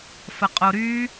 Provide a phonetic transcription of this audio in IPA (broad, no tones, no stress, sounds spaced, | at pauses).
f ə qʼ o ɾ yː